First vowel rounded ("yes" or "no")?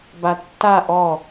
no